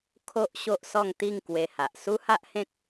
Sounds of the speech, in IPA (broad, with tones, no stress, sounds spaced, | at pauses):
kʰ o˦ ʔ ɕ o˦ ʔ s ɔ˥˧ ŋ t̪ i˥˧ ŋ k w e˧ h a˨ ʔ s u˦ h a˦ ʔ h ẽ˦ k̚